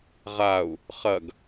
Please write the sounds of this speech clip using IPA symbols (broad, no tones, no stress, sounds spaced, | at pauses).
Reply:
ʁ a u̯ | χ ɐ ɡ